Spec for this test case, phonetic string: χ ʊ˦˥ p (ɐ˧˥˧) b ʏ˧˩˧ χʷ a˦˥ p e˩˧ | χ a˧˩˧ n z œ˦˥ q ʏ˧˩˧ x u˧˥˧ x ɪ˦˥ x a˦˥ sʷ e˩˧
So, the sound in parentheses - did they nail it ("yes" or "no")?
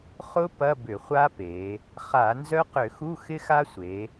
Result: yes